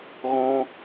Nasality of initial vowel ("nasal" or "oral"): nasal